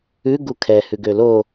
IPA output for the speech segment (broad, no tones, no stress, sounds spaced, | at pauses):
ʉ ɡ u kʰ ɛ h ʉ ɡ ø l o